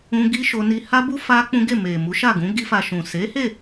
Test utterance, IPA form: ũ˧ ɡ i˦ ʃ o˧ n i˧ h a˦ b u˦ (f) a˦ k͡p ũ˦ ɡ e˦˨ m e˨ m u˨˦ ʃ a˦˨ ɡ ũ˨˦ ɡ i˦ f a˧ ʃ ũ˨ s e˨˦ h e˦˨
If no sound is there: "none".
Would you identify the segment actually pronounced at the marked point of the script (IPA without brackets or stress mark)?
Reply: f